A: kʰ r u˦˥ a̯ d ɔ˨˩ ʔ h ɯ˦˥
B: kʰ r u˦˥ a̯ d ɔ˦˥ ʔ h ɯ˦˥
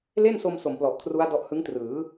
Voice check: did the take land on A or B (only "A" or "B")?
B